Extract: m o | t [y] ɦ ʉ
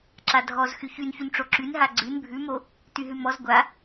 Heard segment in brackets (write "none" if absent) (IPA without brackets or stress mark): y